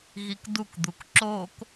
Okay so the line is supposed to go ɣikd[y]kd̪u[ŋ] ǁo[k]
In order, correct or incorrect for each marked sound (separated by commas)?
incorrect, incorrect, correct